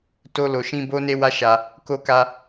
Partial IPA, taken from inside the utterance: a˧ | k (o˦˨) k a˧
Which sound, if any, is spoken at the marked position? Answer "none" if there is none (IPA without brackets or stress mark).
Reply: o˧